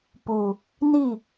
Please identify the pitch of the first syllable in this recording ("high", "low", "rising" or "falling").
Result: low